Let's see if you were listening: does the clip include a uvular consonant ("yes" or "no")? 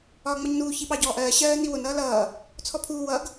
no